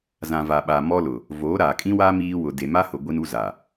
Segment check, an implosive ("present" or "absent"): present